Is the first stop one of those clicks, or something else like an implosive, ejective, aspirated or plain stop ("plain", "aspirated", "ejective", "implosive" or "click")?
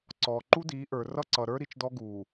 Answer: click